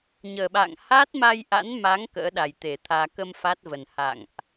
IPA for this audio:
ɲ əː˨˩ ɓ a̰ː˧˨ ŋ h a˦˥ t̚ m a˧ j ʔ a̰˧˥ n m a˨˦ ŋ k ə̰ː˧˥ ɗ a˧˩ j t̪ e˧˩ t̪ʰ aː˧ k ə˧ m f a˦˥ t̚ v ə˨˩ n h a̰˧˨ ŋ ʔ

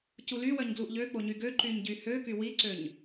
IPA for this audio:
c u l y w œ ɲ ɡ l u ʔ ʎ ø k͡p o ɲ y ɡ ø ǃ y ɲ ɟ y h ø k y w i ǀ ø ɲ

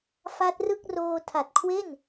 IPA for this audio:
f a˦˥ t̚ r ɯ˥˩ k̚ r oː˧ tʰ a˨˩ t̚ kʰ w e˥˩ n

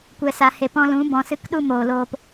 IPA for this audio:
kʷ ɛ˨ s a˨ h e˨ p ɔ̃˧ l ũ˨˦ b ɔ̃˨ s ɨ˧ k ɗ u˦ m oː˨ l oː˧ p

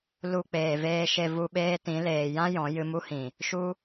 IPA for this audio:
l u˧ k͡p eː˨ v eː˧ ʃ e˧ v u˧ ɓ eː˦ t ĩ˨˦ l eː˨ j ã˦ j ɔ̃˨˦ j ɨ˧ m u˦ h ĩ˨ | ʃ u˦

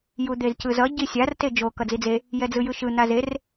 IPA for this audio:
j u d̪ e z c ɯ z ʌ ɟ i sʲ a r t e d͡ʒ o k ʌ d͡z i d͡z e | j ɛ d͡z ɯ j ɯ ʃ ɯ n̪ a z e r

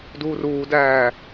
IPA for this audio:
d uː r uː d æː

